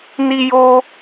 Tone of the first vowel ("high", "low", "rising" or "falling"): high